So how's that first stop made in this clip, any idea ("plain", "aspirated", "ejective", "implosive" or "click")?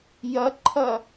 click